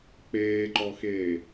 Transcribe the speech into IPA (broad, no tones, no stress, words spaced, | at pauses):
k͡peːǃɔxeː